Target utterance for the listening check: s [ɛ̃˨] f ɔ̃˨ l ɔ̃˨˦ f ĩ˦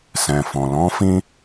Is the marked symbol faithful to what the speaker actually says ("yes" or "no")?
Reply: yes